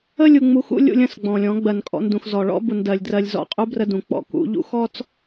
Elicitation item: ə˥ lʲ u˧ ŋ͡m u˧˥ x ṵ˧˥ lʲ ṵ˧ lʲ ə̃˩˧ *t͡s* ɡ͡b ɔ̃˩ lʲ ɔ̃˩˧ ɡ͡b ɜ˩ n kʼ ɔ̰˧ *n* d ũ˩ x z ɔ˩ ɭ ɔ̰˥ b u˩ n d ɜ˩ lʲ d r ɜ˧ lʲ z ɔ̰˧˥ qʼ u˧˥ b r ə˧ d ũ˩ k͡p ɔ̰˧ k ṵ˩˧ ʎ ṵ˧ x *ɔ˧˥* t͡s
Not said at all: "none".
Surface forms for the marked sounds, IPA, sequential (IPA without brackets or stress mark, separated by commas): s, n, ɔ˥